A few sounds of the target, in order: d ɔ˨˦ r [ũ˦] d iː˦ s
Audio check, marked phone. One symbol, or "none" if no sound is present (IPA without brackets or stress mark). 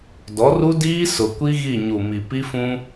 u˦